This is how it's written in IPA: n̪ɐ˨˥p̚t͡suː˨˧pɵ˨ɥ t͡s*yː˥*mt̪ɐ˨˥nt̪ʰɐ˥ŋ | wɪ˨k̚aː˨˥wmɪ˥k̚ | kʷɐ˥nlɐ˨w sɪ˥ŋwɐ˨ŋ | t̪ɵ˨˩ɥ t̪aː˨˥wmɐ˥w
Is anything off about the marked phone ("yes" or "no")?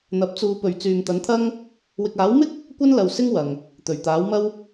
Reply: yes